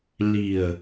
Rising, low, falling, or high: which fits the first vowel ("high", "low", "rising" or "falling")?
low